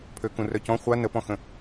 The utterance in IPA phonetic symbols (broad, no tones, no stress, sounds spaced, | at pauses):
pʰ ø k ũ r œ c ɔ̃ χʷ a n ə p ɔ̃ x ə̃